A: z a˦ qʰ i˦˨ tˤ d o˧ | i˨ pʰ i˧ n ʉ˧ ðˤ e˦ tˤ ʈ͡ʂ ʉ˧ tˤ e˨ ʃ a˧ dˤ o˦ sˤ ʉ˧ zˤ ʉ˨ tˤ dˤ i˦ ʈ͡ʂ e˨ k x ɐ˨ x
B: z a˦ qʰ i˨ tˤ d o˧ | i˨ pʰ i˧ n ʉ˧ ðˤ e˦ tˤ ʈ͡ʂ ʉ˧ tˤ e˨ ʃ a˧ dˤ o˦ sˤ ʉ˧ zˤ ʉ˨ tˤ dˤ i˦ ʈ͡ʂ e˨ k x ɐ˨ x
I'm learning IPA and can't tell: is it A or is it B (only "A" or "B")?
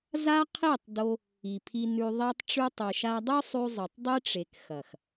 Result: A